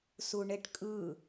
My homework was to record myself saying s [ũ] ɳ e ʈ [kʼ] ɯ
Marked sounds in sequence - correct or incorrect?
incorrect, correct

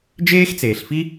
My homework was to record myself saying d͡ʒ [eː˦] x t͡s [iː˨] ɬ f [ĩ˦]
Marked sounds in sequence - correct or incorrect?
correct, incorrect, incorrect

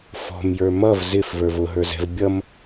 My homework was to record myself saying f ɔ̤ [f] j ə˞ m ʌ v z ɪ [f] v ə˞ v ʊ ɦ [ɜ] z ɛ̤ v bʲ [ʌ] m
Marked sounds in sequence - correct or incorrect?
incorrect, correct, incorrect, correct

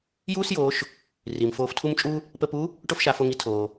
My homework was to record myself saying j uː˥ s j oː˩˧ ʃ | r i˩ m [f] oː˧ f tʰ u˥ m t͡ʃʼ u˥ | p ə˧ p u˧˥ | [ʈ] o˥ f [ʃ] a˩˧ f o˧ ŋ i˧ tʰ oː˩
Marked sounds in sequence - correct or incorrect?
correct, correct, correct

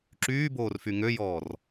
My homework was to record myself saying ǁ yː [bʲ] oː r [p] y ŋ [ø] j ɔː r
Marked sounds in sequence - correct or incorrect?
incorrect, incorrect, correct

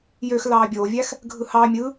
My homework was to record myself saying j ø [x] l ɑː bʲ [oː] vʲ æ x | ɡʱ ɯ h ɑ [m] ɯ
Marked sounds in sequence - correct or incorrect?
correct, correct, incorrect

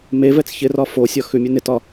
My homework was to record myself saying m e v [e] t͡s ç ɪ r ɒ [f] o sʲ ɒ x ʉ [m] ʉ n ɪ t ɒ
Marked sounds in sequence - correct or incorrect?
incorrect, correct, incorrect

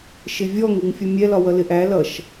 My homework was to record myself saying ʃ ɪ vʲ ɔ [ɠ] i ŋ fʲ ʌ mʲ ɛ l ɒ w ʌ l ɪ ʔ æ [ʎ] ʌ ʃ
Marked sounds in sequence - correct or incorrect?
incorrect, incorrect

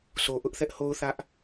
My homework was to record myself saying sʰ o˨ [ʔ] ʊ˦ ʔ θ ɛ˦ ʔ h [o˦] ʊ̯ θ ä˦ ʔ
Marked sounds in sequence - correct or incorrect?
correct, correct

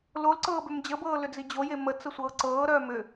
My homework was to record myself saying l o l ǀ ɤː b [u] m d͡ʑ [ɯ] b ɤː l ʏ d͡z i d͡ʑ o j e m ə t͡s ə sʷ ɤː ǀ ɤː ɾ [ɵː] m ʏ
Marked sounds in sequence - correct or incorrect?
incorrect, incorrect, incorrect

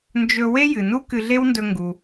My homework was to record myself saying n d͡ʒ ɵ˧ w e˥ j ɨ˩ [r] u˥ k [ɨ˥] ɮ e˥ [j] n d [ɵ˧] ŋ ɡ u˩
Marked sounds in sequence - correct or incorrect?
incorrect, incorrect, incorrect, correct

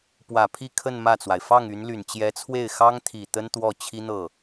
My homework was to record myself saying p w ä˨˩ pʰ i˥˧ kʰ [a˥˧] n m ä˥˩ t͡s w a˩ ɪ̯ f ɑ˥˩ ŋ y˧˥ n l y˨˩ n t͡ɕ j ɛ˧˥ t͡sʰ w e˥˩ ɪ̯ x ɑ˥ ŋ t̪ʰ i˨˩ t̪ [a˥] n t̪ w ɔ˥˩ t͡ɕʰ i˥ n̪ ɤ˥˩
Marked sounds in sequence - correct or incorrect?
incorrect, incorrect

